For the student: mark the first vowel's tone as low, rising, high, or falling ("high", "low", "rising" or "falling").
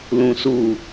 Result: low